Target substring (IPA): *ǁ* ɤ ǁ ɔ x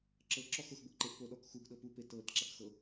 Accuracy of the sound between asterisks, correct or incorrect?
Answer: correct